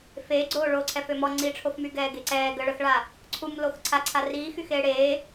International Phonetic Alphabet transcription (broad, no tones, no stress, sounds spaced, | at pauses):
f eː ɡ͡ǀ oː ɭ oː ǀʰ ɛ f ø m ɔ ŋ͡ǀ i ʈ͡ʂʰ o f m y ɡ ɛː ɡ e ǀ ɛː ɡ ə ɭ ə x ɭ a | ǀʰ u m l o x ǀʰ a ǀʰ a r iː x y x eː ɽ eː